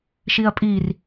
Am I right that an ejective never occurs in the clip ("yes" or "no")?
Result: no